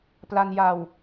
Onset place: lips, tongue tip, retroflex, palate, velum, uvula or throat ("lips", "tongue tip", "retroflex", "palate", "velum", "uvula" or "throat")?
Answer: lips